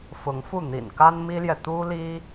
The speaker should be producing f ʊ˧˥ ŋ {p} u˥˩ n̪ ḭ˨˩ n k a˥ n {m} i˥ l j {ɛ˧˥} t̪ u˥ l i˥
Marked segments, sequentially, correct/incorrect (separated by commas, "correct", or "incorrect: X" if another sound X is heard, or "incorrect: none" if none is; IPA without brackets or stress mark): incorrect: f, correct, incorrect: ɛ˨